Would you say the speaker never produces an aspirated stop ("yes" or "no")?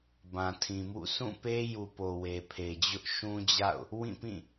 no